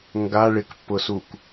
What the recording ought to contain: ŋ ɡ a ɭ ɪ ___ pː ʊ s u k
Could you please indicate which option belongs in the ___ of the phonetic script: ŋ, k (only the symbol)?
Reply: k